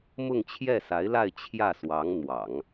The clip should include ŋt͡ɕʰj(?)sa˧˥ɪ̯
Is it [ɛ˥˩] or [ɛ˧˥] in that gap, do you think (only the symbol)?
ɛ˥˩